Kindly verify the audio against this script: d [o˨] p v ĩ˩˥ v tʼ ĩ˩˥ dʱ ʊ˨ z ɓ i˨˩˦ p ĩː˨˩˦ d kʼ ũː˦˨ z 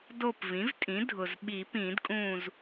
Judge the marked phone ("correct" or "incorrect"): incorrect